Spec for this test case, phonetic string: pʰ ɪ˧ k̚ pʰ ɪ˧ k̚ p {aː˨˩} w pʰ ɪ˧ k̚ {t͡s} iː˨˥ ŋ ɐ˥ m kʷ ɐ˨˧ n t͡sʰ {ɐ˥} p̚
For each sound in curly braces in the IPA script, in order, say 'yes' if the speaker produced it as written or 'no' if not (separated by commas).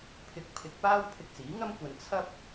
no, yes, yes